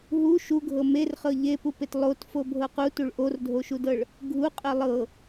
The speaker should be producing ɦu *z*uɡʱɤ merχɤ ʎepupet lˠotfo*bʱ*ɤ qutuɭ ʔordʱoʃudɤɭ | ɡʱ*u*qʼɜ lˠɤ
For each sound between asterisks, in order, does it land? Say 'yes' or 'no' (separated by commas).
no, yes, yes